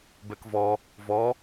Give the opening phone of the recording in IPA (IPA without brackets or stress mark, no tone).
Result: b